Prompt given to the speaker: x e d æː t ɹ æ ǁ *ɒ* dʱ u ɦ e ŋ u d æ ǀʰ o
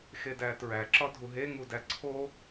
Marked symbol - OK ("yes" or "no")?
yes